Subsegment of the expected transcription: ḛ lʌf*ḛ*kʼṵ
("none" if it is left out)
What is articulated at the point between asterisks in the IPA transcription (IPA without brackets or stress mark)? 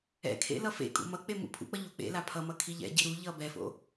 ḛ